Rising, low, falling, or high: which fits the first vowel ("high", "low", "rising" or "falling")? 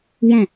falling